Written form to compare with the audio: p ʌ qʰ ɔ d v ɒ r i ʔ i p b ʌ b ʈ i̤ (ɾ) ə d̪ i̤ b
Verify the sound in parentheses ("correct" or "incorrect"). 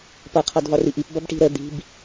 correct